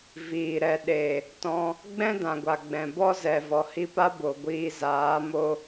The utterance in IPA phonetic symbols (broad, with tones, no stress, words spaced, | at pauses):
viː˨ɾɛ˨ɗe˨ | tɔ̃˧ | ɡ͡bɛ̃˦dã˨ɡʷa˨ɡ͡bɛ̃˨ bɔ˦zɛ˨ vɔ˨hi˧pa˦ bo˨ɡʷiː˧zaː˨˦mo˧